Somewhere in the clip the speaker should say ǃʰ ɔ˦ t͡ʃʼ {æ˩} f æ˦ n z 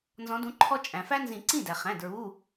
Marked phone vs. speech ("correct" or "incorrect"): incorrect